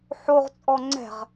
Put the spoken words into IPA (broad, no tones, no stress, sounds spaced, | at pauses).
ħ o ʁ t͡sʼ ɔ ŋ͡ǀ ɛ̤ ʁ